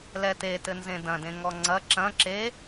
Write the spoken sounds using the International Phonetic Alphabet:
lɛtetɘ nzẽdɐ̃dẽŋɔ ŋ͡ǀɐ ǁɐ̃ ǁe

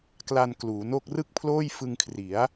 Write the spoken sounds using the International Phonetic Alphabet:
kla˧nkluː˩˦no˥˩k̚ rɯ˥˩k̚pʰloː˥˩jfɯ˧ŋkʰri˩˦a̯

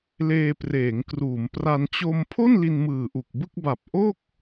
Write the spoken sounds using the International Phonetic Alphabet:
leː˧preː˩˦ŋkruː˩˦mpra˧n t͡ɕo˧mpʰo˥˩n li˧nmɯː˨˩ʔu˨˩k̚bɯ˥˩k̚ ba˨˩p̚ʔo˥˩k̚

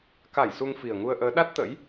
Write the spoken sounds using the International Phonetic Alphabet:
ka˧˩j su˧ŋfi˨˩ə̯ŋu˧ə̯ʔəː˨˦ ɗa˦˥t̚t̪ə̰ː˧˥j

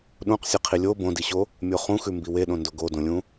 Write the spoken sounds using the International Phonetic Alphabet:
ɗũqsʲeqʰi lʲo bõdiɕo | mʲoχũxʉ mbiweɗõndo ɡodõlʲũ

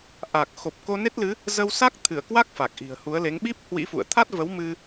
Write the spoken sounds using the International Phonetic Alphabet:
ʔa˨˩k̚xo˨˩p̚ ko˧ne˦˥t̚lɨ˨˦ | zə˧wsa˦˥k̚t̪ʰɨ˧˩ə̯kwa˦˥k̚ fa˨˩k̚ʔi̤˨˩ə̯hu˨˦ə̯ le˨˦ŋ ɓi˦˥p̚ hwḭ˧˥fṵ˧˨ə̯ t̪ʰa˦˥t̚və˨˦wmɨ˧

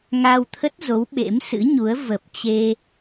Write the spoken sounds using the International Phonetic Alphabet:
ŋa˧wt̪ʰə˦˥t̚zo˨˦w ɓḛ˧˥msɨ̰˧˥ɲu˨˦ə̯ və˨˩p̚t͡ɕe˧

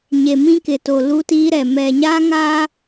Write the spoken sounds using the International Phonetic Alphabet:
ɲe˨mĩ˦kɪ˨ to˨ lu˦tiː˦ɾɛ˨ mɛ˨ɲa˦ŋa˦

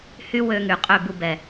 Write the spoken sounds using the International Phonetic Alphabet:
hy˦wø˧ ŋy˨qʼø˦˨bu˧ bɛ˨

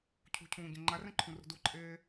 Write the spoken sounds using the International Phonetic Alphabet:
cʰṳcʰũːɟẽ ŋ͡ǃarɛ̃ǃʰũrṳ duǃʼeː

